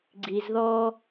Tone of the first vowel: low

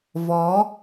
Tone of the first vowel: rising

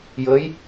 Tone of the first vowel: rising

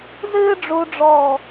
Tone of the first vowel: high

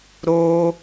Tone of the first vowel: high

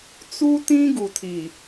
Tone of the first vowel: high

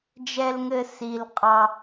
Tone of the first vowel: low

